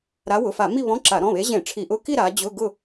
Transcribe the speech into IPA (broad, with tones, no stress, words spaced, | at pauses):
ɾa˨˦wʊ˩˧˩fa˧˩˧ mi˥˧βɔ̃˧˥˧ǁa˧˩˧ ɾɔ̃˩˧˩βe˨˦ʑẽ˧˩˧ ʈ͡ʂʰi˧˩˧ʔʊ˧˥˧ki˥˧ ɾa˨˦ d͡ʑʊ˧˥˧ɡʊ˥˧